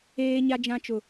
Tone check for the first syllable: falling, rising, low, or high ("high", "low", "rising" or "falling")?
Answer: high